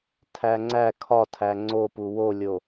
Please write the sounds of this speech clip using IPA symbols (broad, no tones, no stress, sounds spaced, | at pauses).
tʰ æ ŋ͡ǀ æ kʰ ɒ tʰ æ ŋ͡ǀ o p u w o lʲ o